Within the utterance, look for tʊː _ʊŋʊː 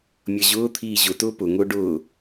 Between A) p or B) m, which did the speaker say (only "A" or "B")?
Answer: A